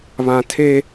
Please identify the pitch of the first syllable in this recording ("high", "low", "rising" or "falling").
high